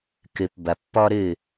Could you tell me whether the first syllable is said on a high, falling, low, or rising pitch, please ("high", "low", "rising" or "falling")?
low